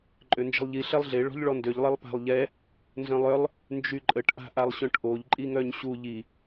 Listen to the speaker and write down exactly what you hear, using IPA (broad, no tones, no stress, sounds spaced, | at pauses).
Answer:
ǃʼ ø n d͡ʒ ə̤ lˠ ʎ i ɬ ɛ lˠ ɮ e ɭ ɔ̤ ʎ ɭ ɔ n d ø ʎ lˠ e lˠ p a̤ lˠ ʎ ɛ | n z œ̃ lˠ œ lˠ | n d͡ʒ y ǃʼ ə ʈ ʔ a̤ ʔ a lˠ ɕ œ̃ ʈ ʔ o ʎ ǃʼ i ŋ œ ɲ ɕ u ʎ i